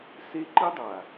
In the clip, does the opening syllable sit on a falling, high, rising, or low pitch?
high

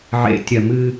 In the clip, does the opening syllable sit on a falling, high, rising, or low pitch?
low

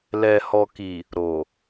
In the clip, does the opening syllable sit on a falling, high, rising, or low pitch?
low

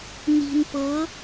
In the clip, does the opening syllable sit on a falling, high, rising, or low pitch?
low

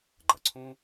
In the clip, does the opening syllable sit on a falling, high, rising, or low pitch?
low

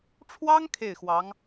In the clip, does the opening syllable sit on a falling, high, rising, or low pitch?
high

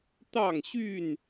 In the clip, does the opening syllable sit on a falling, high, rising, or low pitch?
falling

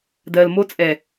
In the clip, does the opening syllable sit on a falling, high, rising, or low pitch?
low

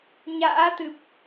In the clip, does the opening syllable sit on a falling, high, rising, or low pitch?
rising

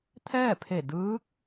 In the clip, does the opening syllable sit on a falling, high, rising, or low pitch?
falling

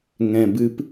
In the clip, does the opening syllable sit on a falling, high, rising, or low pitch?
low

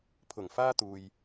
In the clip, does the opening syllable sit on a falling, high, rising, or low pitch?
low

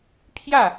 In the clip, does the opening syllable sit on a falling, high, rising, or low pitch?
falling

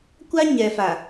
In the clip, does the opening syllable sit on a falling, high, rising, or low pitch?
high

